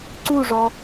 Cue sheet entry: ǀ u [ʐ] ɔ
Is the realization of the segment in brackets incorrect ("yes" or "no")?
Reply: no